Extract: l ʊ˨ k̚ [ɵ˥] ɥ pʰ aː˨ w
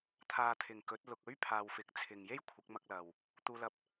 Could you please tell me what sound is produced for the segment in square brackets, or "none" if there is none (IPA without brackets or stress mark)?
ɵ˥